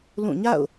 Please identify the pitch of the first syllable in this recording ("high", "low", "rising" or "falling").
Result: falling